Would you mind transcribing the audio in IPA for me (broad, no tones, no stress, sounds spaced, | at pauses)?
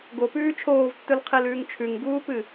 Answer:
ɡ o p ʉː t͡ʃʰ oː v tː ɵ l qʰ e l ʉː ŋ t͡ʃʰ ʉ ŋ ɡ uː p ɨ